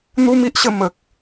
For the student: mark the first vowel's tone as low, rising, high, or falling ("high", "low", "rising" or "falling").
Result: high